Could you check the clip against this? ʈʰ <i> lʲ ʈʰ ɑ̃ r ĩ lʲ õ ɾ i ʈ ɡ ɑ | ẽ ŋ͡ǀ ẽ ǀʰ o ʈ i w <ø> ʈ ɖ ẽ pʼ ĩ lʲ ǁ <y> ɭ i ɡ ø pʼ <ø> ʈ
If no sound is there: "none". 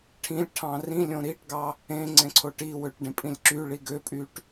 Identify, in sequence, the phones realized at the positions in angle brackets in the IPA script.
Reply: ĩ, ø, y, y

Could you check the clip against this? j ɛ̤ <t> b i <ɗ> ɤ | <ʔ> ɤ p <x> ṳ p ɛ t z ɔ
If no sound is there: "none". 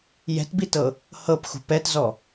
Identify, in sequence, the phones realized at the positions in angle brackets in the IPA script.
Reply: t, t, h, x

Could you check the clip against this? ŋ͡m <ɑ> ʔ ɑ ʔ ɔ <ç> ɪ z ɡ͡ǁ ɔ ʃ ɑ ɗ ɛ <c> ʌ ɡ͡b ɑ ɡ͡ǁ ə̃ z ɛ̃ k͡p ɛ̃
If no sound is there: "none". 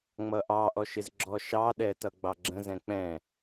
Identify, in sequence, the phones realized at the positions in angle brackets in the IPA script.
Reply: ʌ, ʃ, t

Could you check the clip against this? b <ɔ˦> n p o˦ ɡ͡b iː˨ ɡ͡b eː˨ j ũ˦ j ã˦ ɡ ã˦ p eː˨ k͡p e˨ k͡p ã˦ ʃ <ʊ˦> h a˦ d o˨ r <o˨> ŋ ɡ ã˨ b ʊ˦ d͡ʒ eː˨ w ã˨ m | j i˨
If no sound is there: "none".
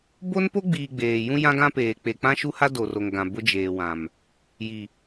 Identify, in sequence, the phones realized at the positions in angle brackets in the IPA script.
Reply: o˦, u˦, o˨

